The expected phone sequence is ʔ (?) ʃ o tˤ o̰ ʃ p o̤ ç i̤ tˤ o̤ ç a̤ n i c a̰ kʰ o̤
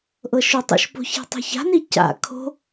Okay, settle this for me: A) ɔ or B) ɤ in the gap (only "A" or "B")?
B